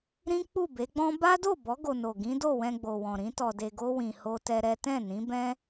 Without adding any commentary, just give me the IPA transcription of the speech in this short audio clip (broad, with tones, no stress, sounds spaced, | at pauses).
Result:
ɾ ĩ˦ k͡p u˦˨ b e˨˦ ɡ͡b ɔ̃˦ b a˦ d o˦˨ b ɔ˨˦ ɡ o˧ n o˨ ɡ ĩ˨˦ d o˦˨ w ɛ̃˧ ɡ͡b o˨ w ɔ̃˨ ɾ ĩ˨˦ t ɔ˧ d e˧ ɡ o˦ w ĩ˧ h o˦ t ɛ˦ ɾ ɛ˦ t ɛ̃˦˨ n ĩ˨˦ b ɛ̃˦